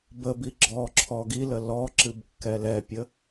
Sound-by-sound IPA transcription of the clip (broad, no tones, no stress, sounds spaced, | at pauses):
b ə b i ɡ͡ǁ ɔ ǁʰ ɔ ɡ i l ə l ɔ ǁ ɨ b kː ɛ l ɛ pʲ ə